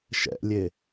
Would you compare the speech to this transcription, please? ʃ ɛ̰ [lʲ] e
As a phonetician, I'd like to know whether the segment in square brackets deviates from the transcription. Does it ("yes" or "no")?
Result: no